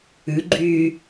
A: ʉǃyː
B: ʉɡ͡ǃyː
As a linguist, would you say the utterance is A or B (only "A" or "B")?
B